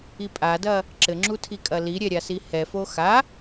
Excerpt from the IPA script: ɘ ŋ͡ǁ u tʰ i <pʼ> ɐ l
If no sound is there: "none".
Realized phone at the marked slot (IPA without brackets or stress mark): kʼ